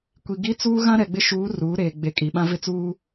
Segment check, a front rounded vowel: absent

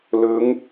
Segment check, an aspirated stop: absent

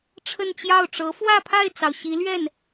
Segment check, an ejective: absent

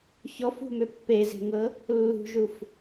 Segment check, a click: absent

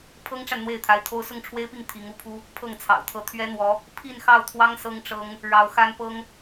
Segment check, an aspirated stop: present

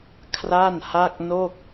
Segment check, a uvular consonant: absent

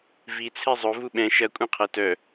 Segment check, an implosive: present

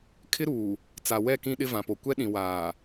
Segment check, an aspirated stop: present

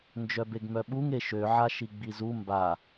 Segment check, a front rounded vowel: present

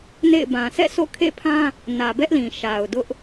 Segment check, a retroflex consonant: absent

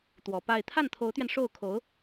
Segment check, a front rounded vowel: absent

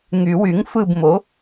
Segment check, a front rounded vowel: present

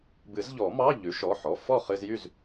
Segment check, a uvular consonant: present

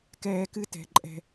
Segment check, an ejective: present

